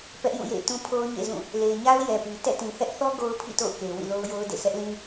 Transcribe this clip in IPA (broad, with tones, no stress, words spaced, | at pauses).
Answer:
pɛ˦ʔjũ˦˨jḛ˦˨ɪ̯ tũ˦pʰo˦ʊ̯ɲḛ˦˨zũ˦˨ | le˨ɪ̯ɲa˦ʊ̯ jɛ˨pi˨ tɛ̰˦˨tĩ˨hɛ˦ʔθɔ˦ ɡo˦ʊ̯pʰḭ˦˨to̰˦˨ʊ̯ke˨ wḭ˦˨lo˦ʊ̯jo˦ʊ̯ dḛ˦˨ sɛ˦ʔlĩ˦